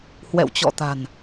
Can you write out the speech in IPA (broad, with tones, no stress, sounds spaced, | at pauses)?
h w ɛ̰˧˨ w t͡ɕ ɔ̰˧˨ t̪ a̤˨˩ n